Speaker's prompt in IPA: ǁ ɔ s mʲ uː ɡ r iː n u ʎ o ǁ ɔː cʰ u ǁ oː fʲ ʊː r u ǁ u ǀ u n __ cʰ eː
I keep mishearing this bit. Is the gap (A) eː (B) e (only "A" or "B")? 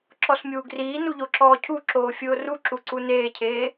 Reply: A